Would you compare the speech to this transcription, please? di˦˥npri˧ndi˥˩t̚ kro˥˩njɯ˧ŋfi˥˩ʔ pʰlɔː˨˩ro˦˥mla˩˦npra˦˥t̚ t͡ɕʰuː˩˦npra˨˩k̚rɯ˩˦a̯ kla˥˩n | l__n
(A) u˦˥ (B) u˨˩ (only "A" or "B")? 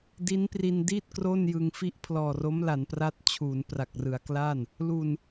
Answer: B